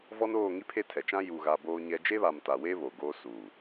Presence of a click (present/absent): absent